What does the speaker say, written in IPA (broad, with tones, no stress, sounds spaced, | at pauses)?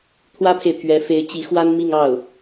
t̪ʰ w ä˥ pʰ e˨ ɪ̯ t̪ʰ ɥ ɛ˧˥ f e˧˥ ɪ̯ t͡ɕ i˧˥ x w a˥ n m i˥˧ ŋ ɑ˥˩ ʊ̯